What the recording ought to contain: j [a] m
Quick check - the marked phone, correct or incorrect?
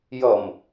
incorrect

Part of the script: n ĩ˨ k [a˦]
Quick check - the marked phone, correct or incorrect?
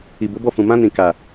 incorrect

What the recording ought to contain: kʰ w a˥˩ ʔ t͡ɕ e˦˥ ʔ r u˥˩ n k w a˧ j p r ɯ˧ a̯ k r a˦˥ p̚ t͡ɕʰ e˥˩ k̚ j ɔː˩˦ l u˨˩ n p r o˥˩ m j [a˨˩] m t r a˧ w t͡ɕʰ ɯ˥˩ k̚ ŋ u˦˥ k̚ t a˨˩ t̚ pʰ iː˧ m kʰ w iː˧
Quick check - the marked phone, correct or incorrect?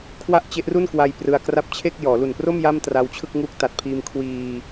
incorrect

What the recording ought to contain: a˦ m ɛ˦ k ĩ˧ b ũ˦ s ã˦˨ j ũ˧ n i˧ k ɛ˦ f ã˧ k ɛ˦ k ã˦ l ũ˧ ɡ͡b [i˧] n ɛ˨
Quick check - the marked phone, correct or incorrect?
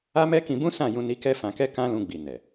incorrect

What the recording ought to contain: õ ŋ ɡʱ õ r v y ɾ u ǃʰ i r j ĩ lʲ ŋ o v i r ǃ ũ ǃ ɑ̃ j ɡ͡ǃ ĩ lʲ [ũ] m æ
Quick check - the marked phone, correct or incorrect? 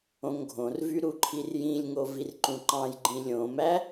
incorrect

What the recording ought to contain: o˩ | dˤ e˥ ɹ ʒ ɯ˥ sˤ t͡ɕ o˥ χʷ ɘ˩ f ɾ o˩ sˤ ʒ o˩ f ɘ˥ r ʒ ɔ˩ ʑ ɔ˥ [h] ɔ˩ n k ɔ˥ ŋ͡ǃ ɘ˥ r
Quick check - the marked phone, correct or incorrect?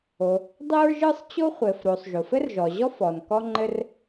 incorrect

